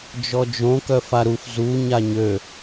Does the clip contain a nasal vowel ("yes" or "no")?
yes